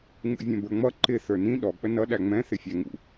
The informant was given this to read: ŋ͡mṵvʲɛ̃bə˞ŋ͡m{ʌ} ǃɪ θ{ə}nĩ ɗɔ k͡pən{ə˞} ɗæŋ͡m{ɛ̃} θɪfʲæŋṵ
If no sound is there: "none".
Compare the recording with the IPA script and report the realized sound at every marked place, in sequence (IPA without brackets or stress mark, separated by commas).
ʌ, ə˞, ʌ, ɛ̃